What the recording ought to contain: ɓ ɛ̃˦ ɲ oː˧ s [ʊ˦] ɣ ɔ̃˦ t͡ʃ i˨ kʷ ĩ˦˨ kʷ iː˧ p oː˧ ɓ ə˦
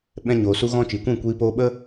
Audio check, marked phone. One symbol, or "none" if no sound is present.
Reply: u˦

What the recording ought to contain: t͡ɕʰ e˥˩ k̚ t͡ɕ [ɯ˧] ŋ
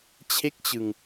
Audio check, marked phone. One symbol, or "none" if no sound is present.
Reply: ɯ˧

